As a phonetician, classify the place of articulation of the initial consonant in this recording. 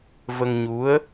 labial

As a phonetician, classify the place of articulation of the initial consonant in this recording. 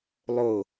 alveolar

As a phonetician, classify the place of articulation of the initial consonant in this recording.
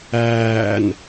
alveolar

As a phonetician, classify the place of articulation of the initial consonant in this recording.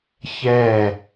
palatal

